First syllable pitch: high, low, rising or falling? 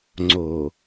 low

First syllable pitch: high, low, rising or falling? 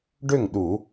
falling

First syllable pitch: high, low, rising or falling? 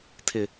low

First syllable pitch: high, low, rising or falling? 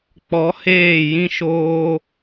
rising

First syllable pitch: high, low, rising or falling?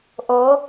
rising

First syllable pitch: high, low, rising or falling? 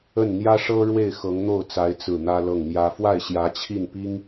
falling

